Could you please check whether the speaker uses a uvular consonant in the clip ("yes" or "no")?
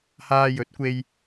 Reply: no